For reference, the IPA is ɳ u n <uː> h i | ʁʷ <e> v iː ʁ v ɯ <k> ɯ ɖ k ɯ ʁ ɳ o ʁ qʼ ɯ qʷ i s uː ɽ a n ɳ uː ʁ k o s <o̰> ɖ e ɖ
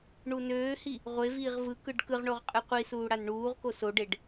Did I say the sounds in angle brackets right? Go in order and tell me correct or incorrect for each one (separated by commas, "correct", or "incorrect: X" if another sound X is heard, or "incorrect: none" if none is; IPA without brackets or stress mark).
incorrect: øː, correct, correct, incorrect: o